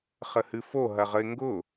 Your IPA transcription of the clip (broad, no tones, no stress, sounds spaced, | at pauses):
χ ə h ɨ f o ɦ ɐ ʁ ə ɪ̯ ŋ ɡ ʊ